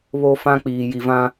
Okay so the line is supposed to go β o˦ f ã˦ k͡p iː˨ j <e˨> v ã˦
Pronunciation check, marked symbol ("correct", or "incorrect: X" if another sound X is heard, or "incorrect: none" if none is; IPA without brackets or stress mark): incorrect: i˨